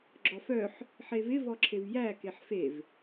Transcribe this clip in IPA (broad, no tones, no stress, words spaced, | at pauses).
ɡ͡ǁɔfœħ | ħevɪ vɔǁʰevjæ keħfev